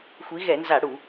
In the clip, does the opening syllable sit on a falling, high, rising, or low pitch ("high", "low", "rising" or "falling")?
rising